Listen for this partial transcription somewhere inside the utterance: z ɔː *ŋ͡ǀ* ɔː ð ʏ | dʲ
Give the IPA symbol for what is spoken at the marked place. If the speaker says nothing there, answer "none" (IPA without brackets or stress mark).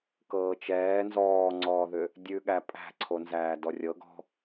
ŋ͡ǀ